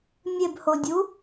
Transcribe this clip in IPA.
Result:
mʲ e b h o dʲ u

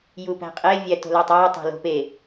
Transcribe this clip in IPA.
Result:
j u p æ̤ qʼ e vʲ æ t o̤ l æ tˤ æ tˤ æ̤ l o̤ p e

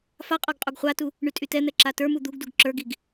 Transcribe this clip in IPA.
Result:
f a qʼ ɔ ɡ qʼ u ɡ χʷ a t u | ɳ y tʼ y t ɛ n̪ ɛ ǁ a t ə˞ m u d̪ u ɡ d u ɡ ǁ ə˞ ɡ i ɡ

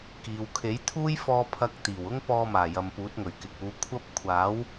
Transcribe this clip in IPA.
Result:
k iː˨˧ w kʰ e˨˥ j t̪ʰ uː˥ j f ɔː˧ pʰ ɐ˧ k̚ t̪ iː˨˩ w ʊ˥ ŋ p ɔː˧ m aː˨˩ j ɐ˨ m p uː˨˥ t̚ ŋ ɵ˨˩ ɥ k ɪ˨ k̚ uː˨˧ kʷʰ ɐ˥ p̚ kʷʰ aː˨˥ w

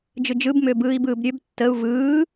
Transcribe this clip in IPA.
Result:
d͡ʒ ɯ d͡ʒ ɯ b m ʏː b ɯː i̯ b ɯː b ɾʲ ø b tː ə u̯ v ɯː

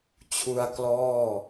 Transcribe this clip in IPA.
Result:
t͡ɕʰ u˧ a̯ k l ɔː˥˩

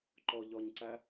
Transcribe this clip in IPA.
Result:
ǃ ɔ ʎ ɔ ɲ ǀ æ

